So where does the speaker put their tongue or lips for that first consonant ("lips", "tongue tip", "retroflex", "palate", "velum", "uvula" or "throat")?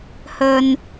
throat